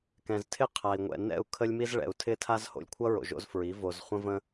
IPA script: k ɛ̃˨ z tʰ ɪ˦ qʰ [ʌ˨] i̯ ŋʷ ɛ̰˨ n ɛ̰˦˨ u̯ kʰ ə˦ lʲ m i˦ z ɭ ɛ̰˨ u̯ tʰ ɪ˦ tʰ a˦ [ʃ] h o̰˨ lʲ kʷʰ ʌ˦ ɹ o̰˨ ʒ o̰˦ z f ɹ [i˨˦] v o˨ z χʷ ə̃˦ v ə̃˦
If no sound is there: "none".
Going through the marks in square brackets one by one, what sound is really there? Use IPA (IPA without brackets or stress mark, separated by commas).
a˨, z, i˨˦